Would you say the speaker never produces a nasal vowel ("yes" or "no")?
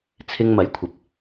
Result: yes